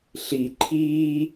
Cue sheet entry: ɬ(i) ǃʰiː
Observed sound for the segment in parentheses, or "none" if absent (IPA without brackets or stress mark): i